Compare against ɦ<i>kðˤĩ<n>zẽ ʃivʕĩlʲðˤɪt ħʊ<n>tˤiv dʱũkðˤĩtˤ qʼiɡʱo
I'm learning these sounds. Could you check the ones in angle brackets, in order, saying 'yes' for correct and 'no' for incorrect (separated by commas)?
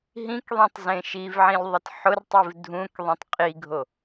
no, no, no